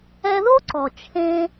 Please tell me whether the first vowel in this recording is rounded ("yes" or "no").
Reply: no